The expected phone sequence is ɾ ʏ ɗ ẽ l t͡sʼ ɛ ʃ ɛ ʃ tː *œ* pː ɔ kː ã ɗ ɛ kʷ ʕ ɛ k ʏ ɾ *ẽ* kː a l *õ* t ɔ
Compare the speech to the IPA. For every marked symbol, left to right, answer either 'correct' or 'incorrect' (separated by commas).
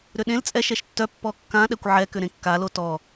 correct, correct, incorrect